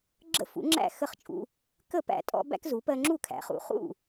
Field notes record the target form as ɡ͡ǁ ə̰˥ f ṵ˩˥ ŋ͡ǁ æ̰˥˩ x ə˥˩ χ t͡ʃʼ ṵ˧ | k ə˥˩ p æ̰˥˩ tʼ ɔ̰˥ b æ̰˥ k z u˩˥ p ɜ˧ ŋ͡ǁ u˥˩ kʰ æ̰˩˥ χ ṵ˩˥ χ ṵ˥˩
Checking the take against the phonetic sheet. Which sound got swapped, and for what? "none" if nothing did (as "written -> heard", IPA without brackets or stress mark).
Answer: none